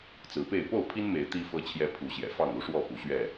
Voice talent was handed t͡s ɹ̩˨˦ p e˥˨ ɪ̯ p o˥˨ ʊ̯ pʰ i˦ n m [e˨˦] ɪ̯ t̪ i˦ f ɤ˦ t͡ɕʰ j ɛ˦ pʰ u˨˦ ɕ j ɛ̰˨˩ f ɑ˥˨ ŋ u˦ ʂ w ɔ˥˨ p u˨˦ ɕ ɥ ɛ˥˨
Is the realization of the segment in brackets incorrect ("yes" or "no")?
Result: no